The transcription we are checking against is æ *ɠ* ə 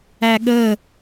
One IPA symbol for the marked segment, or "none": ɠ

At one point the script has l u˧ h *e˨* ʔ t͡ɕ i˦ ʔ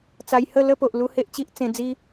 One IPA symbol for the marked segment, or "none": e˦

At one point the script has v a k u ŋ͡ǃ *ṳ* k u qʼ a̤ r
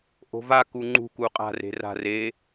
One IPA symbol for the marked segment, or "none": ṳ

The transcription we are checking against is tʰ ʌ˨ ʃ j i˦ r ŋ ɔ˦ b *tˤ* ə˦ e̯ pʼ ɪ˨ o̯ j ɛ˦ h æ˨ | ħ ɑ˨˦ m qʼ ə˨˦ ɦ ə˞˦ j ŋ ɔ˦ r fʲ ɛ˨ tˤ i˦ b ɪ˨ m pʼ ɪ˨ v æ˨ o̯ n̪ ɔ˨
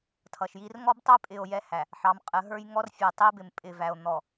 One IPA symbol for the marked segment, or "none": tˤ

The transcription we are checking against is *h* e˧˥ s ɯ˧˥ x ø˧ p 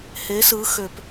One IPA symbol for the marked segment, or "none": h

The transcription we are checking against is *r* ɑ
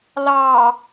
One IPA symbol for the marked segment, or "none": l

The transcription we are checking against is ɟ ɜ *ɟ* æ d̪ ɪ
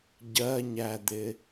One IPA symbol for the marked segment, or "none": ɲ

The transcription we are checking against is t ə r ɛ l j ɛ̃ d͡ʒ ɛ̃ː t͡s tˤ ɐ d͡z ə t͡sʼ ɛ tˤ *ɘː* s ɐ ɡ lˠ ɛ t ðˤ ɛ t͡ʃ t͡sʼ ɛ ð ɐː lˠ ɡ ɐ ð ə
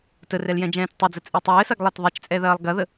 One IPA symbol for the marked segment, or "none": ɘː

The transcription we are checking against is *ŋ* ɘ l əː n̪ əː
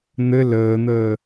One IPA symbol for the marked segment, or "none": n̪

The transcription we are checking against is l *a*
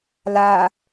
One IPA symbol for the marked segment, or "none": a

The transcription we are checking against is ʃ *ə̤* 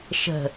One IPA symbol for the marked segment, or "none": ə̤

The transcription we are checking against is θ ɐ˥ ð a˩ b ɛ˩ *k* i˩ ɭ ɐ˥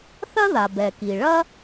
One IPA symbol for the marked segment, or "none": k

